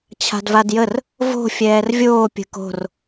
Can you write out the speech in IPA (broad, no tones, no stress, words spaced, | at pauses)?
t͡ɕʰa̤dvadjər | vo̤ fʲɛːrvʲoː pʲə̤ko̤r